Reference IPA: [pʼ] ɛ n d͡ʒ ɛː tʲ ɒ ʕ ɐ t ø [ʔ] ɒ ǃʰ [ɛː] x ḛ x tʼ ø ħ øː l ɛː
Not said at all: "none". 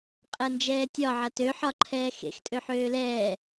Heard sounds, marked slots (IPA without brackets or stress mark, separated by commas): qʼ, ħ, ɛː